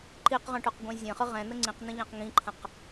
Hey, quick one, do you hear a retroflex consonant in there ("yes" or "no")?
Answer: yes